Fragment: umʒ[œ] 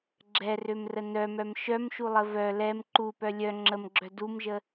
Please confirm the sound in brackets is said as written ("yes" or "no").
no